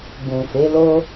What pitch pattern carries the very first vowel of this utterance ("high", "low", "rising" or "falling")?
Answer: low